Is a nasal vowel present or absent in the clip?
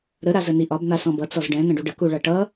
present